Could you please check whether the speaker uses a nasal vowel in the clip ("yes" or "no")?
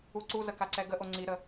no